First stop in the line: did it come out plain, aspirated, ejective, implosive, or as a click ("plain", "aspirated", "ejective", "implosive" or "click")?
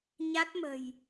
plain